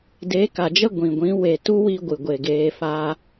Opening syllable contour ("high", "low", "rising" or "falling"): rising